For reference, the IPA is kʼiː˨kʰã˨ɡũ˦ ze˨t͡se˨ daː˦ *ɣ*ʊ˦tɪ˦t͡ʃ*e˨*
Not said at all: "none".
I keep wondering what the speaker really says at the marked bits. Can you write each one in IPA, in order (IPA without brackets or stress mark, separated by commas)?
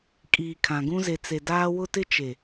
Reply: w, e˨